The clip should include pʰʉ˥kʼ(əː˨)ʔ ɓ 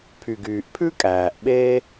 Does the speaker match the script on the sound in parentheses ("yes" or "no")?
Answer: no